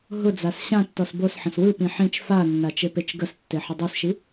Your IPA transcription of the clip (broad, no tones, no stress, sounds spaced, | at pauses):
ɦ ʊ d͡z a s ɕ ã tː ɔ s b o s ħ ə̃ s w ɯ p ĩ ħ ĩ t͡ʃ f a nː a t͡ʃ e p e t͡ʃ ɡ ə s tː e ħ ə dˤ i s ʃ i